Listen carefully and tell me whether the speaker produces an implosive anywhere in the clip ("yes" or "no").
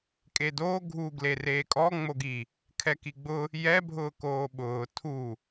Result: yes